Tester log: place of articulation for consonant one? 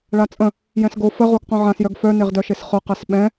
retroflex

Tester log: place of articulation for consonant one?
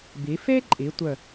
labial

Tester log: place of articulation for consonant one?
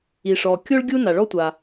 retroflex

